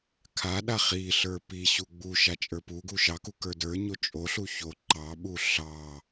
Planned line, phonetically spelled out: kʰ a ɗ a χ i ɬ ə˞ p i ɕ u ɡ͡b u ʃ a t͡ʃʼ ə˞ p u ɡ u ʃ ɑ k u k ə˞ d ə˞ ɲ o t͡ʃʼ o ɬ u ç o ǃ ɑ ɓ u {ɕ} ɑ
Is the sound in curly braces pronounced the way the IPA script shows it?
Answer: no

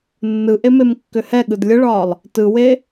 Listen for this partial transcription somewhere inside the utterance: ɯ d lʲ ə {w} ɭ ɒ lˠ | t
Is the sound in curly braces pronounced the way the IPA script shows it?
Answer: no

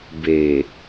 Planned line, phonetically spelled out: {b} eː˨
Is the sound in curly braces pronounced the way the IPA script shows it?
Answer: yes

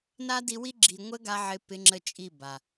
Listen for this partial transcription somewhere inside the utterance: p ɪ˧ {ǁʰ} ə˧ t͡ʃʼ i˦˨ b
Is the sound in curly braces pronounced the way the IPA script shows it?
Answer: no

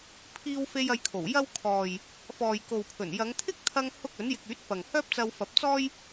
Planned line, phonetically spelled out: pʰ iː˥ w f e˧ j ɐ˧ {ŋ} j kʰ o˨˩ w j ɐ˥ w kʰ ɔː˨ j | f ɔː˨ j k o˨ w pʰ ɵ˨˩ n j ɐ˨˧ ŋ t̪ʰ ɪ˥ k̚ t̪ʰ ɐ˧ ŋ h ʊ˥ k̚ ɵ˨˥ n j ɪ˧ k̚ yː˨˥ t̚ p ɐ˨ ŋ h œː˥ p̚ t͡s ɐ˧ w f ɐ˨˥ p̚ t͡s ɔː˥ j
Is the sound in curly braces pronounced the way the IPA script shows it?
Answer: no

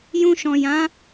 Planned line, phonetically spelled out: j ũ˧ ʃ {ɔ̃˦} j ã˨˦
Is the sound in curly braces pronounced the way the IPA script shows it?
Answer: no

